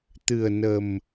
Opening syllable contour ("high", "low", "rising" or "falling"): low